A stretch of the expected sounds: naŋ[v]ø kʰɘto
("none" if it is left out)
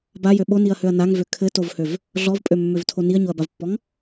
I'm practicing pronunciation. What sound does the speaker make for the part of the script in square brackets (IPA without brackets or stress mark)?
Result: v